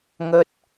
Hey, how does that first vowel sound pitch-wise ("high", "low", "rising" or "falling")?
high